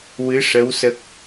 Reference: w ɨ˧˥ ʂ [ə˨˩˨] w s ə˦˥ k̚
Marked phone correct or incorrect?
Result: incorrect